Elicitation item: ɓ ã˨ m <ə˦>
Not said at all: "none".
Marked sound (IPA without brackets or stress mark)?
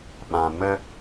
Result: ə˦